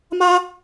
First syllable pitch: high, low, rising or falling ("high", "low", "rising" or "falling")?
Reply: high